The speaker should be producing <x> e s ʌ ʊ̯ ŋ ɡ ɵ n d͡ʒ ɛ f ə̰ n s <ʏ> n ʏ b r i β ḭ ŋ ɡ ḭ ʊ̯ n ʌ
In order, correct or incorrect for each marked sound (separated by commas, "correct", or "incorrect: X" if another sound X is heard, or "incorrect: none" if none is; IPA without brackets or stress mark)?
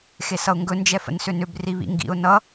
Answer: correct, correct